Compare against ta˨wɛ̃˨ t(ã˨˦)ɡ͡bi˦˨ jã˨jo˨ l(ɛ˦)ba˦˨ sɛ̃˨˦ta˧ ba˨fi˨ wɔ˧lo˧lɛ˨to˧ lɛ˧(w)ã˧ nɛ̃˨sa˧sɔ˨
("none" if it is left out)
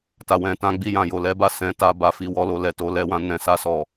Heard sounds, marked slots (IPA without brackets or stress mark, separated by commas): ã˨˦, ɛ˨˦, w